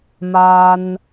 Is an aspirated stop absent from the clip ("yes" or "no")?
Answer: yes